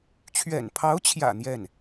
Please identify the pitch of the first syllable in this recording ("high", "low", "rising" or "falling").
low